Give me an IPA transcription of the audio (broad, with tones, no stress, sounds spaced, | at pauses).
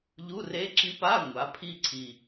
ʎ u˧˥˧ r e˧˥ ǁ i˧˥ p a˧˥˧ ŋʷ a˩˥ pʰ i˦˨ ǀʰ i˨˩